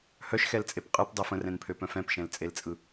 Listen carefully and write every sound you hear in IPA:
h œ ʃ x ɛ l t͡sʼ e p qʼ ɯ p dˤ ɛ f ə̃ r ɛ̃ n pʰ ø p œ̃ f ɛ̃ p ʃ ɛ̃ l t͡sʼ e l t͡sʼ ɯ

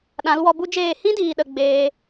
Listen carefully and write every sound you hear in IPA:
ɗ ã˨˦ l w ɔ˧ b u˦ d͡ʒ eː˦˨ h ĩ˦ d iː˨ ɗ ə˨ ɡ͡b eː˧

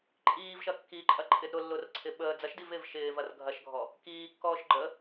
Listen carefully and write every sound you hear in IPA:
ǃʼ iː v ʃ ɐ kː i ǃʼ ɐ ǃʼ ɪ d ɾ ʊ lː ʊ r ǀʰ ɪ ɓ əː d͡z ɐ ʃ d i v ɪː v ʃ ɪː v ɐ r ɡʱ ɐ ʃ ɡʱ ɔ | k iː kː ɔː ʃ ɡ͡ǃ ə

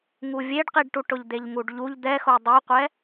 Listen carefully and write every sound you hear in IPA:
ŋ u vʲ e ɖ q i ɖ ʈ u ʈ ʊ ʎ d̪ e ʎ ŋ u ɖ ʎ u ʎ d̪ ɛ x o dˤ i qʷ ɛ

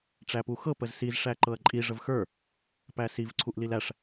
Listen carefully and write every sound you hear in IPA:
ʈ͡ʂ æ p u x ɤ p ə z s i z ʂ æ ǃ ɤ ɐ̯ ǃʼ i ʐ ə v x ə˞ | p æ s i v ǀʰ u ʔ l i l æ ʂ

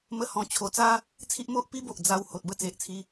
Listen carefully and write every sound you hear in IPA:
m ə˦ h ɔ̃˧ t͡ɕʰ o˧ t͡s a˦ | t͡sʰ i˦ ʔ m o˦ ʔ p i˦ b o˨ ʔ d͡z a˧ w h o˨ t̚ b ə˥˧ t͡s e˨ ʔ t͡sʰ i˧

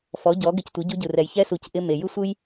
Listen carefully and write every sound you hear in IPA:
f ɔ˨˦ ɟ ɔ˨˦ ɡ ɪ˧ c tʷ i˨˦ ɟ u˧ ɟ ɯ˨ r ɛ˨ j ç ɛ˧ s u˨ c ʔ ɪ˧ m e˨ j ɯ˦ sʷ ɯ˦ j

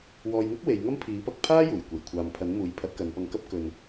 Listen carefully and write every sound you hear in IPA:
w ɔː˨ j ŋ ʊ˥ k̚ w e˨˧ j ŋ ɐ˥ m pʰ iː˨˥ p ɐ˨˥ k̚ pʰ aː˥ j uː˨˩ j kʷ e˨˩ j kʷʰ aː˨ m pʰ ɐ˨˥ n m uː˨˥ j pʰ ɐ˨˥ t̚ k ɐ˨˧ n p ɐ˧ ŋ k ɐ˥ p̚ k ɵ˧ n

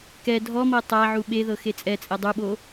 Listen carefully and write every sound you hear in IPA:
k ɛ dʱ ɔ m ɤ tˤ a ʕ u ɓ e ð ɤ x e t͡sʼ ɛ t͡sʼ ɛ dˤ u ɓ o

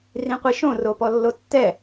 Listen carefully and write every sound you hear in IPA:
r ĩ qʷ i ʃ õ r o p ɔ lː o tː ɛ

